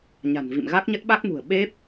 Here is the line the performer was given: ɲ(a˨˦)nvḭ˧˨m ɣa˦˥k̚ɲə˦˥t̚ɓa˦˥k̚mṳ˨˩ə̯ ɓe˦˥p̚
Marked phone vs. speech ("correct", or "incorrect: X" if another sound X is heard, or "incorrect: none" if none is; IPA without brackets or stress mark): incorrect: a̤˨˩